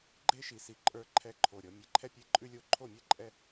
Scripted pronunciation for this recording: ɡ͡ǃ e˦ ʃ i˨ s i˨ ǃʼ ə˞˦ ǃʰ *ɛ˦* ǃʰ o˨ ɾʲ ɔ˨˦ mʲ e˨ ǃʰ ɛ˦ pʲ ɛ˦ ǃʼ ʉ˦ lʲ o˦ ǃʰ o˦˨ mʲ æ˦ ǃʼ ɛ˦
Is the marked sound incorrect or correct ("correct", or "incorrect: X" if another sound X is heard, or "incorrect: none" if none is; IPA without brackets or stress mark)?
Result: correct